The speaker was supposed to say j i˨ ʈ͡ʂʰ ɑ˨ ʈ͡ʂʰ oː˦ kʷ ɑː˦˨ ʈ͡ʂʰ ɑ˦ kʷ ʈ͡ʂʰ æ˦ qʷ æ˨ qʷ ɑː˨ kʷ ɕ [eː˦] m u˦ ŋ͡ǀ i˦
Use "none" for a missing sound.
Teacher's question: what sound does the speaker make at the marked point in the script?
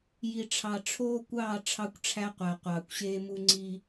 eː˦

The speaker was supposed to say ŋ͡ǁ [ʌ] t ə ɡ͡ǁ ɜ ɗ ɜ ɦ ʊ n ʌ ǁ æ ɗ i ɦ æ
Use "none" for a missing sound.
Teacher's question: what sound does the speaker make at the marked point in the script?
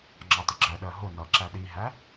ɑ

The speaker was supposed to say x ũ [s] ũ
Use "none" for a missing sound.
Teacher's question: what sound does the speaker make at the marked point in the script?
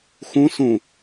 s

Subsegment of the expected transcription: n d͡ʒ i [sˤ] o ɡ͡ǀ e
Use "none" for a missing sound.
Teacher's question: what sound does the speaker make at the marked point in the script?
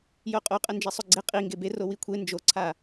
sˤ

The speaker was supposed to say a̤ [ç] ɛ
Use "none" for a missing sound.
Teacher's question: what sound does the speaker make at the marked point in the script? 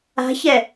ç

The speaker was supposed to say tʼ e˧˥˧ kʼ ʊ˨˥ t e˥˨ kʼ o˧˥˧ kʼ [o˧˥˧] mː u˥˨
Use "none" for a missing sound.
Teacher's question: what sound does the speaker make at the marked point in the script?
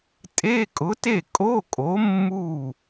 o˨˥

